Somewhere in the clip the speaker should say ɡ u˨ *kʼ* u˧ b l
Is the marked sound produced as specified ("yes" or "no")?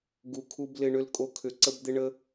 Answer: no